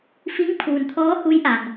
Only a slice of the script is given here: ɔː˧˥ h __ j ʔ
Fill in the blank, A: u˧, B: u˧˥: B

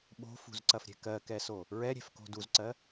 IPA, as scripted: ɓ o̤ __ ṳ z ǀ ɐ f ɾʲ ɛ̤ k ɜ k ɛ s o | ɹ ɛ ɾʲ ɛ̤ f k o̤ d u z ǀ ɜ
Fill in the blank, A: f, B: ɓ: A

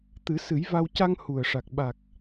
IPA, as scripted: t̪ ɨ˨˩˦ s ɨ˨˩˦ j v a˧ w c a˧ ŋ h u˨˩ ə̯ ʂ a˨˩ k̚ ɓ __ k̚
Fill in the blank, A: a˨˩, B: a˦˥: A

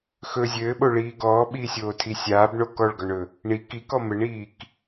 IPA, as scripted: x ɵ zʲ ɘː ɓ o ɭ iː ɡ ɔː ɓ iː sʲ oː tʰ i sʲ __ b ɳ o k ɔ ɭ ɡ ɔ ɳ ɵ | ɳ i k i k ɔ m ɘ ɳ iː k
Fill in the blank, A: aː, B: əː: A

